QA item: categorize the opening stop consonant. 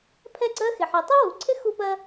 aspirated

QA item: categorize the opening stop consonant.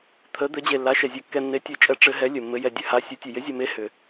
aspirated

